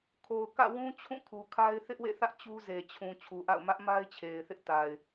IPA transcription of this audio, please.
kʰ o˨ ʊ̯ k ä̰˦˨ w ũ˦ t͡ɕʰ ũ˦˨ kʰ u˨ kʰ a˦ ɪ̯ θ ɪ˦ ʔ w ḛ˦˨ θ ä˦ ʔ t͡ɕ u˦ z e˨ t͡ɕʰ ũ˨ t͡ɕʰ u˨ ʔ a̰˦˨ ʊ̯ m ä˦ ʔ m a˦ ɪ̯ t͡ɕʰ e˨ ɪ̯ θ ɪ˦ ʔ t a˨ ɪ̯

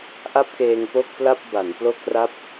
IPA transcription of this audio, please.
ʔ a˥˩ p̚ k eː˧ ŋ p o˥˩ k̚ p l a˥˩ p̚ b a˩˦ n p l o˥˩ k̚ r a˥˩ p̚

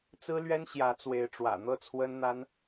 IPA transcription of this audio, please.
t͡s ɹ̩˦ l ɥ ɛ˦ n ɕ j ä˨˦ t͡s w e˨˦ ɪ̯ ʈ͡ʂ w ä̰˨˩ n̪ ɤ˥˨ t͡sʰ w ə˦ n n̪ a˦ n

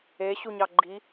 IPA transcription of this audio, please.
e ɕ u ɲ ɑ ɡ͡ǃ i

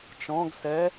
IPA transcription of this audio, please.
t͡ʃ ɔ̃ ɡ s ɛ

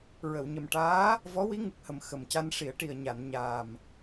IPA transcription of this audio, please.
ɹ ə˨˩˨ w ɲ ə˨˩ m ʈ aː˧˥ | v ɔ˧˥ w i˧˥ ŋ ɨ˨˩ k̚ h ə˨˩ m x ə˨˩ m c a˧ n ʂ i˨˩˦ ə̯ ʈ i˨˩ ə̯ ɲ a˨˩˨ n ɲ aː˨˩ m

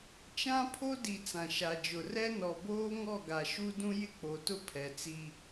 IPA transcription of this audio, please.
t͡ʃ ã˦ pʰ o˦ d i˨ t͡s ã˨ ʃ a˨ d͡ʒ ʊ˨ r ɛ˦ n ɔ˨ b oː˦ ŋ ɔ˦˨ ɡ a˨ ʃ u˦ d ũ˦ j ɪ˦ k͡p o˨ t ʊ˦ pʰ ɛ˨ t͡s i˦

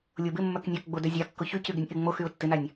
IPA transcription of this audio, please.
lʲ o b ɪ mː œ k nʲ œ k ɡ͡b o d œ zʲ a kː ʊ ç y c y ɡ ɪ nʲ ʔ ɪ ŋ͡m o x y ʊ̯ tː ɪ n a nʲ

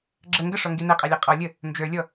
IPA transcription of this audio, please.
ɡ͡ǁ ə ŋ ɡ ə ʂ ɔ ŋ ɡ i n ɛ qʼ ɑ lʲ ɑ qʼ ɔ lʲ ə | n d͡ʒ ə˞ lʲ ɔ

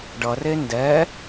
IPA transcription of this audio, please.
ɖ ʌ r e n d ɛ

